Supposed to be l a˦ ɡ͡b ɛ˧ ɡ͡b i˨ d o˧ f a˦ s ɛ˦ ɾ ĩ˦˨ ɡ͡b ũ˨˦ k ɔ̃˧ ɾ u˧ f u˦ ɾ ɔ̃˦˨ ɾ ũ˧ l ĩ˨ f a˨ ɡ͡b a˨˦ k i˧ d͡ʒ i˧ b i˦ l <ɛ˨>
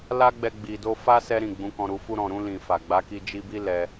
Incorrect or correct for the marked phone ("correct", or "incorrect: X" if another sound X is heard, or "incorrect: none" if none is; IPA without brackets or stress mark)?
incorrect: ɛ˧